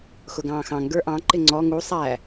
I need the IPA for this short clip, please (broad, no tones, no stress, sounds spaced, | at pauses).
x ʊ ɡ ɑ̃ː x ɑ̃ ŋ ɡ ə˞ ʔ ɑ̃ ǃ ɪ ŋ͡ǀ ɔ ŋ u sˤ æ